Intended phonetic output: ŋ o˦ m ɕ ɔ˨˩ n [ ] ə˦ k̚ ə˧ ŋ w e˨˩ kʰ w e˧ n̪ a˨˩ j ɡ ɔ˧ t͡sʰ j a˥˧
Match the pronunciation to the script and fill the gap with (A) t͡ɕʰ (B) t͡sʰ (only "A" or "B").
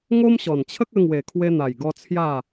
A